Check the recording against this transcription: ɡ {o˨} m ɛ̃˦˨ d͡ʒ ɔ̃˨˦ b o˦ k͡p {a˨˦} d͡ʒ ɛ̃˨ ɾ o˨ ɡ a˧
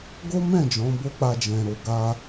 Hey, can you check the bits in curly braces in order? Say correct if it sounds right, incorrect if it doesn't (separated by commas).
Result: incorrect, incorrect